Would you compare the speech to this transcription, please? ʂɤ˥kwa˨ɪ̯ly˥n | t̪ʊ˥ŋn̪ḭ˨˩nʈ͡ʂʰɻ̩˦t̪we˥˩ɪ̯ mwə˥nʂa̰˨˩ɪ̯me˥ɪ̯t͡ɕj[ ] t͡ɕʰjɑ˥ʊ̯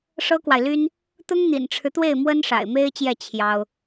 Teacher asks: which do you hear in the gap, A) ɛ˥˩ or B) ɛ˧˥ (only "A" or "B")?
A